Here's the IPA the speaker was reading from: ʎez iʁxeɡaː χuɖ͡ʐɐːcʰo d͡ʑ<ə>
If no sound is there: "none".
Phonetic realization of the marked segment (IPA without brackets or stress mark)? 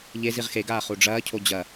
ɐ